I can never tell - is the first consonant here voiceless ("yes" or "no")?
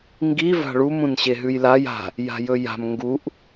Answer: no